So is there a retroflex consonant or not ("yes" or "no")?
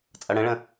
yes